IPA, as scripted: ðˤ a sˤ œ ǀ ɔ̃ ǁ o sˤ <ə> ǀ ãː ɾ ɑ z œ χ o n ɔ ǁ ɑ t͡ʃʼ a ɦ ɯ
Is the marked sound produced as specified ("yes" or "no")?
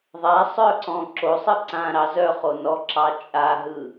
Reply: no